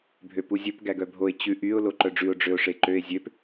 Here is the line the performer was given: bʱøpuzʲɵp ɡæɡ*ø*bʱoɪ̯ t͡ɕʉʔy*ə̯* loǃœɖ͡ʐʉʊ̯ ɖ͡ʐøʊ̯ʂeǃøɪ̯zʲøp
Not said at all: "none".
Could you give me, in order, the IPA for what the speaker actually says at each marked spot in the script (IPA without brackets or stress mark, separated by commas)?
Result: œ, ʊ̯